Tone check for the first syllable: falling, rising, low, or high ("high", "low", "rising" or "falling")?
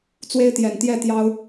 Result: high